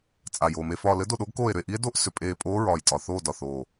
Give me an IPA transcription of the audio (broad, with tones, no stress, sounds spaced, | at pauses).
t͡sʼ a˨˩ j oː˨˩ m e˦˨ f ɒː˦˨ l ɘ˦˥ d o˦˨ ɗ o˦˥ ɡ k oː˦˨ e̯ ɾ ʏ˦˨ e̯ ʔ i˦˥ e̯ d o˦˥ ʔ s ʏ˨˩ pʼ eː˦˨ pʼ oː˦˥ ɹ ɒː˨˩ j tʼ ɒ˨˩ θ oː˦˨ d ɒ˨˩ θ oː˨˩